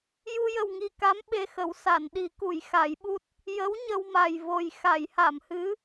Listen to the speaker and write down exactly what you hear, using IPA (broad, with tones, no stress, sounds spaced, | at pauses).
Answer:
j u˧ j ə˨˩ w ŋ i˨˩ k a˧˥ m ɓ e˧ x ə˨˩˦ w s a˨˩˨ n ɗ i˨˩˦ k u˨˩˨ j x a˨˩˦ j ɓ u˦˥ t̚ | j ə˧˥ w ɲ ə˧ w m a˨˩ j v o˨˩ j x a˨˩˨ j h a˨˩˨ m h ɨ˧˥